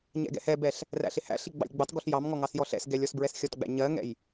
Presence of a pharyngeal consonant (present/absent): absent